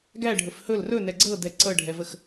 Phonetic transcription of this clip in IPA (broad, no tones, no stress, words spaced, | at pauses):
ɡæɖʱɵf hɵl rɵnɛ ɡ͡ǀɤdɛ ǀɤɖʱɛvəx